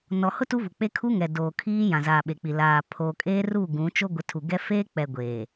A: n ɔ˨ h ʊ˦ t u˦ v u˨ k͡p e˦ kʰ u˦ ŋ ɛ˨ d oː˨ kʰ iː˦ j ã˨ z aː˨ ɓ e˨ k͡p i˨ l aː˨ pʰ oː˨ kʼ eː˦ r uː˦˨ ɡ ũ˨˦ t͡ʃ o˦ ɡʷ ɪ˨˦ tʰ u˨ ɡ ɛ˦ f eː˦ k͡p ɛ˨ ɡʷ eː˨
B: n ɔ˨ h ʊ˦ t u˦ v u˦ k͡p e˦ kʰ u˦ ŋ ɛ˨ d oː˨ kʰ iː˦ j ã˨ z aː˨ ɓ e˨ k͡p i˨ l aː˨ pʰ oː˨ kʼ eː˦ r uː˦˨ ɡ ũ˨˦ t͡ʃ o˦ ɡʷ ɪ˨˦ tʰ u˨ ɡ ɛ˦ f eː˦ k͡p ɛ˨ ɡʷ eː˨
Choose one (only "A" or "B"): A